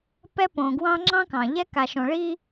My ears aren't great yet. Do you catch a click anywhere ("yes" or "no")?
yes